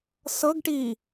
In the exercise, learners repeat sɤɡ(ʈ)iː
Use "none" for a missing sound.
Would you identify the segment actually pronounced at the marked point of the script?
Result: ʈ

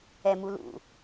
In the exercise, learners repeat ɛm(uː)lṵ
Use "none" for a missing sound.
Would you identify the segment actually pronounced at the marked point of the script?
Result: u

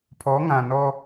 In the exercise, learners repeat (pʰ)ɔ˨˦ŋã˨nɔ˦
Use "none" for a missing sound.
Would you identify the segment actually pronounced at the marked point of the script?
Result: pʰ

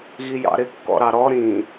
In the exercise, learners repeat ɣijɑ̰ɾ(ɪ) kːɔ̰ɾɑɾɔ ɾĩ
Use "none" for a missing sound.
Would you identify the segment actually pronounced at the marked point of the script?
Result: ɪ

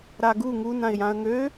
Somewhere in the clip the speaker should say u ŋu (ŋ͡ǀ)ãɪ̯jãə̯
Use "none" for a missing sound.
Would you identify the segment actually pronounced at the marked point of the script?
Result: n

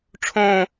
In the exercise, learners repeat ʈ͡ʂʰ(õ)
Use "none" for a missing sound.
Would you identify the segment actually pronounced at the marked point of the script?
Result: õ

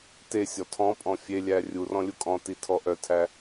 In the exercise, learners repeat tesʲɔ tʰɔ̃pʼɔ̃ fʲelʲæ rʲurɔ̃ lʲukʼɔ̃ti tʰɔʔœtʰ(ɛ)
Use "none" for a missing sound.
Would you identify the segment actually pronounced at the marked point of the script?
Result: æ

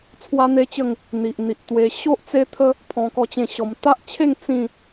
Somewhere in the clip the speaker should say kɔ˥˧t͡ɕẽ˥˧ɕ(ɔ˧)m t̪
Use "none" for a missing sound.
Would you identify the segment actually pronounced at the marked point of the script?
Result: ɔ˧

